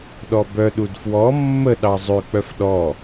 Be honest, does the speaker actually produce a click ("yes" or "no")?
no